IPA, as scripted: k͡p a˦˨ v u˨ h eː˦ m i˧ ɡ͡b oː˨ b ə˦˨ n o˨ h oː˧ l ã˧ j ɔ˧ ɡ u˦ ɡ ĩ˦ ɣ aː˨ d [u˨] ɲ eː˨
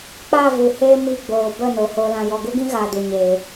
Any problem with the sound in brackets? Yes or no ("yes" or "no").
no